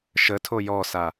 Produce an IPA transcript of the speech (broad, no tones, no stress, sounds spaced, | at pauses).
ʃ ə tʰ o j ɔ s a